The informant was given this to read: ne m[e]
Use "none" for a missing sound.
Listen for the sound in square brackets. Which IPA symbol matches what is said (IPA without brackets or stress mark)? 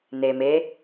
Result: e